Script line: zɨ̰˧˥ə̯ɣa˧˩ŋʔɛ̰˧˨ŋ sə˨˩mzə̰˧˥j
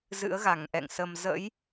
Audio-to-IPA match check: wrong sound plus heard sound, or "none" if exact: none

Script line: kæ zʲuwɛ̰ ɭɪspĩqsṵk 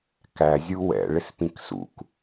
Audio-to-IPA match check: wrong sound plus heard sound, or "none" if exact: q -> k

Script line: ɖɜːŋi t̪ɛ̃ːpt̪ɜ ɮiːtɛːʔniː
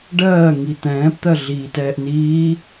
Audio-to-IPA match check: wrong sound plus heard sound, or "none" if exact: none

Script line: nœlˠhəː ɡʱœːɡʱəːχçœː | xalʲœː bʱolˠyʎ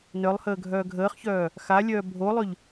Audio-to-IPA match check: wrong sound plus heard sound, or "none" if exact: none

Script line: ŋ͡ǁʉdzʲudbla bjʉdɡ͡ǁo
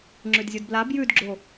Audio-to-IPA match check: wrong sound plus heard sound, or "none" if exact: none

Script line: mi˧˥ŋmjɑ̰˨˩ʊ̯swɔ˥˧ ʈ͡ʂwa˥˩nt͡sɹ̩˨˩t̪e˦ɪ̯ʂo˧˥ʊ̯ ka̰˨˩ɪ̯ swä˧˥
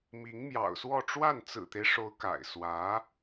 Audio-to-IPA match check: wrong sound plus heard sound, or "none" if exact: none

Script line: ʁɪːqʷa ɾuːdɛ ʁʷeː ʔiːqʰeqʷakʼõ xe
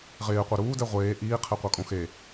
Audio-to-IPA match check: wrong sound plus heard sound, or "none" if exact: none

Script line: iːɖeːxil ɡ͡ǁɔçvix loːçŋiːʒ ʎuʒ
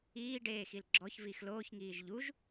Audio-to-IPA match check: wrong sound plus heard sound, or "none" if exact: none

